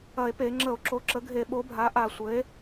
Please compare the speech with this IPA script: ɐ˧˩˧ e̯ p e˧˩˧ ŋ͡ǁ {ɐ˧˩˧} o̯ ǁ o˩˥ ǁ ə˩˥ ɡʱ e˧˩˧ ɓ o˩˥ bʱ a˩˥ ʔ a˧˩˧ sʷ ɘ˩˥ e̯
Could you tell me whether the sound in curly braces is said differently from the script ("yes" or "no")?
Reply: yes